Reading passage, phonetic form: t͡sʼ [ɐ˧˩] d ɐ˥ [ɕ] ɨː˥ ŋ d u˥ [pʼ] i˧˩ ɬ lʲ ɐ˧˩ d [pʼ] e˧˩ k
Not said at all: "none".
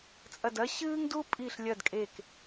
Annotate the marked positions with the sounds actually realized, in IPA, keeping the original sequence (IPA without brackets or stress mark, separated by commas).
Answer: ɐ˧˩, ɕ, pʼ, kʼ